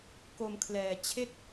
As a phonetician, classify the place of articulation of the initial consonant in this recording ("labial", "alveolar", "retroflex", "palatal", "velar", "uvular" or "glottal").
velar